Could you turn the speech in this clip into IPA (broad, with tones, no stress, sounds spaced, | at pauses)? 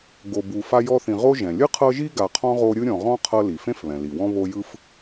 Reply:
ɡ o˨ b u˨ f a˦ j ɔ˦ θ ĩ˨ ʁ o˥ ʒ ɛ̃˩ lʲ ɯ˥ qʰ ɤ˦ ʒ i˥ ɡ a˨ qʰ ɔ̃˥ ʁ o˦ ɾʲ ɯ˥ ɾʲ ɔ̃˨ ʁ ɔ̃˥ qʰ ɤ˦ l i˩ f ẽ˥ f β ɛ̃˩ l i˩ w ɔ̃˦ β o˦ j ɯ˥ f